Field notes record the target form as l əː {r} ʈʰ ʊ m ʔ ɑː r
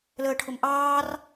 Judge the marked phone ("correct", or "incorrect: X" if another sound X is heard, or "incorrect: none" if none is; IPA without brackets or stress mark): incorrect: none